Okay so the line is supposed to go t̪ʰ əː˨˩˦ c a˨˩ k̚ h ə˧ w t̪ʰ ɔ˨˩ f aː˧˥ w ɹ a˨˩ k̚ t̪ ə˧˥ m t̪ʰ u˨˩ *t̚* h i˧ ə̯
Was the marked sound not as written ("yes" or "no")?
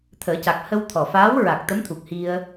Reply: yes